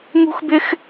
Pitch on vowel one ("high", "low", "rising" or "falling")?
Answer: high